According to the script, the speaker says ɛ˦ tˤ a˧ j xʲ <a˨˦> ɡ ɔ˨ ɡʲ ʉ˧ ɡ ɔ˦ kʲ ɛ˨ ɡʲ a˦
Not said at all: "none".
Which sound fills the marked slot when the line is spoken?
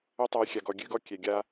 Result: a˨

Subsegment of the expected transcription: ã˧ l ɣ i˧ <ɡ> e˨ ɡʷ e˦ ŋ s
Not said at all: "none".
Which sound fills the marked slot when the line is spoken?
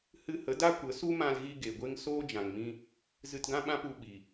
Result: ɡ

